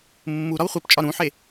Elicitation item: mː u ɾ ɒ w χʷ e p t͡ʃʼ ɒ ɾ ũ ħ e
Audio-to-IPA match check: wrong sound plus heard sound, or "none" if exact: none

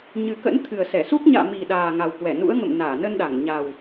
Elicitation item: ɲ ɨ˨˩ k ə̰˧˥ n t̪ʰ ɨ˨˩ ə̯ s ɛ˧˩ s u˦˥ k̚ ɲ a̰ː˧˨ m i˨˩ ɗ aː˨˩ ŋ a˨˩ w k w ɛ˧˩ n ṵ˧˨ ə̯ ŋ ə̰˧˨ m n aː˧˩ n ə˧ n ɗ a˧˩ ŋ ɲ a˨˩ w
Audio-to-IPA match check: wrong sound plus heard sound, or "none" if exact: ṵ˧˨ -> ṵ˧˥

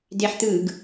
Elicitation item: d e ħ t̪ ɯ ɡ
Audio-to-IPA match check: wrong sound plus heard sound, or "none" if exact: none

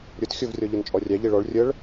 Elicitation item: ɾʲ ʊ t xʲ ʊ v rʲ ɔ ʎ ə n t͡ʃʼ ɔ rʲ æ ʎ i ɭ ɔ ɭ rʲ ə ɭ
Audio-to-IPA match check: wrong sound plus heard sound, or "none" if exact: none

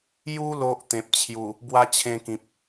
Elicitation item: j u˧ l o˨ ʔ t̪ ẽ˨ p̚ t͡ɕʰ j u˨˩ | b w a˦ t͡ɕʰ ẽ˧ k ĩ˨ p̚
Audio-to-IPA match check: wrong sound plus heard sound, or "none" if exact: none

